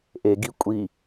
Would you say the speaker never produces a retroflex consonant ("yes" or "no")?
yes